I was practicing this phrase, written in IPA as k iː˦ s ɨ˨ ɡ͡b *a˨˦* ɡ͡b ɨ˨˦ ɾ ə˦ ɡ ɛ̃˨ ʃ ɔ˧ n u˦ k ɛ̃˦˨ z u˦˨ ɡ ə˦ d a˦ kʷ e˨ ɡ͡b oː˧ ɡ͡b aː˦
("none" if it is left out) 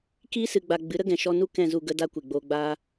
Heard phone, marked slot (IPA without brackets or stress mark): a˨